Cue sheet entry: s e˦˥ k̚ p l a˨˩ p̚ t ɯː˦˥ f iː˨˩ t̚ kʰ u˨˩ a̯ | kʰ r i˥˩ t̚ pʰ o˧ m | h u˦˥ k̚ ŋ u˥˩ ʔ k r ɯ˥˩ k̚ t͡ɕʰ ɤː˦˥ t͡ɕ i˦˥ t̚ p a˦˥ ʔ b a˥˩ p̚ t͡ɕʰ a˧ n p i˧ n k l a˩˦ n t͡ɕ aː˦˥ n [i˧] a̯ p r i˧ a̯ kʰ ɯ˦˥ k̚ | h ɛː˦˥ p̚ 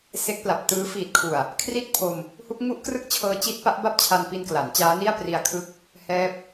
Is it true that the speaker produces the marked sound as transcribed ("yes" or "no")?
no